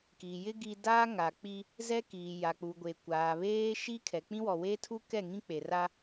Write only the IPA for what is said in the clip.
k iː˨ j ɪ˦ ɡ i˦ d aː˦ ŋ a˨ k͡p i˦ | z ɛ˦ k iː˨ j a˨ k͡p u˨ ɡʷ e˨ kʷ aː˨ β eː˦ ʃ i˦ kʰ ɛ˨ k͡p ĩ˦ w ɔ˨ w eː˦ tʰ u˦ k ɛ˦˨ ŋ ĩ˦ k͡p e˨ r a˦

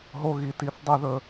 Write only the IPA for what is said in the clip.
ɦ o˧ ɣ i˩ t i˨˩˦ θ dˤ ɛ˨˩˦ ð ɵ˩

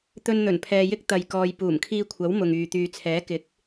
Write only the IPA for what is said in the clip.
t̪ ɵ˧ n n̪ ɵ˨˩ n pʰ ɛː˨ j ɪ˥ k̚ t̪ ɐ˨ j k ɔː˨ j p uː˨˩ m kʰ iː˧ kʷʰ ɐ˨˥ w m ʊ˨ ŋ yː˨ t̪ yː˨ t͡sʰ ɛː˨˥ k ɪ˨˥ k̚

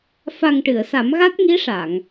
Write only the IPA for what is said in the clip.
f a˨˩ ŋ ʈ ɨ˨˩˨ ə̯ s a˨˩˦ m ɣ a˦˥ t̚ ŋ i˧˥ ʂ a˨˩˨ ŋ

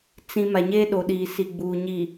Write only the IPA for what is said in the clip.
t͡s ĩ˨ m a˨ ɲ eː˦ ɗ o˨ ɗ iː˨ s i˨ ɡ͡b uː˨ ɲ i˨

